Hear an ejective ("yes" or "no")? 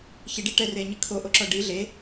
no